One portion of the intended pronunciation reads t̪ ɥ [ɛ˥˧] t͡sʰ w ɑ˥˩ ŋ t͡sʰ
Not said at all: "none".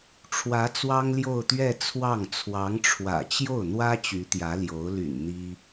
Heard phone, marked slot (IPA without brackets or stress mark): ɛ˥˧